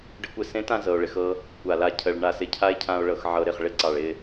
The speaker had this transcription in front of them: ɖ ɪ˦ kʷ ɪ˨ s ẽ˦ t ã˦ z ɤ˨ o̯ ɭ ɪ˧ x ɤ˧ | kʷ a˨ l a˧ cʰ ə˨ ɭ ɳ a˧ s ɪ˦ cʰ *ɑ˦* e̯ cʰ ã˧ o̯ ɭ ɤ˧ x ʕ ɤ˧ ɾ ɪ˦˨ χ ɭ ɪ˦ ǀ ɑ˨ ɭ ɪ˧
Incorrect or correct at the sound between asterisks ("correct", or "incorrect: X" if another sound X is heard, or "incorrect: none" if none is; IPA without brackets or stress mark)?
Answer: incorrect: a˦